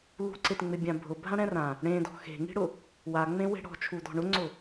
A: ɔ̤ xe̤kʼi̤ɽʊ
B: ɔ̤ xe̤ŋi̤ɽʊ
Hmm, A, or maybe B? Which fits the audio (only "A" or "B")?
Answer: B